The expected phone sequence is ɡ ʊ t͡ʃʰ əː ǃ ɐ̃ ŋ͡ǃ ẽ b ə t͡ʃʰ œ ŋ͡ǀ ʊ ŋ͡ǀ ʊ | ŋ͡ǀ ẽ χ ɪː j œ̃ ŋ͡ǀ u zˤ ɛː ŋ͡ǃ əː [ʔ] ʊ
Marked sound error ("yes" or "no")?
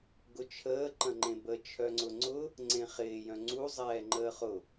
yes